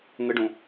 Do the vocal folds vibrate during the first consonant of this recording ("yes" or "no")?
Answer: yes